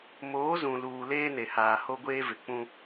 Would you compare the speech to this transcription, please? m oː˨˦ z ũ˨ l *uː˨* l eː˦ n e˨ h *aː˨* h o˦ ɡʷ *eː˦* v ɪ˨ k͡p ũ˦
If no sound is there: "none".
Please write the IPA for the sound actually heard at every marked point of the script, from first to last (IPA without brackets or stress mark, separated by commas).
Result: uː˨, aː˨, eː˦